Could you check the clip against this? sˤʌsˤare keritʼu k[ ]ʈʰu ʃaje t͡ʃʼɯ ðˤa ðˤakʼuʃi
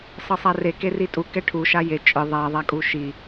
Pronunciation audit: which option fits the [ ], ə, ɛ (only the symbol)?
ɛ